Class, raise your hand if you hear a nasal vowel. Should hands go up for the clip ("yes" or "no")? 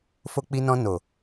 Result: yes